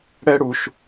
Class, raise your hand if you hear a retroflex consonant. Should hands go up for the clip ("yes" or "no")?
yes